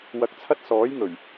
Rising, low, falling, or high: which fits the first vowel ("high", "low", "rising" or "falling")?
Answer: rising